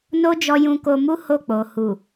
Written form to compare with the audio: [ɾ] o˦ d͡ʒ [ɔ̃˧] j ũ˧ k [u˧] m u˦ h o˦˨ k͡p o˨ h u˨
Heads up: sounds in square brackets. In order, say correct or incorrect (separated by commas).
incorrect, incorrect, incorrect